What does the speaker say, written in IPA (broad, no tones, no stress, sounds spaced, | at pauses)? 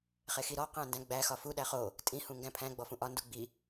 χ e x i ɾ ɔ q æ̃ n d æ̃ ɡ͡b æ x ɒ f u ɗ æ χ o | tʼ ĩ h ũ ŋ ɡ æ̃ pʰ æ̃ ɡ͡b ɔ f ũ ʔ ɒ n d u ɡ͡b i